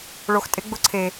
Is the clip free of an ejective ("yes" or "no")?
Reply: no